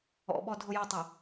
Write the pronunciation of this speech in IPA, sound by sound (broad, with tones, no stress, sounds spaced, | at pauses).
ɔ̰˨ ɓ ɔ˨ dʱ ʊ˨ j o˨ tˤ e˨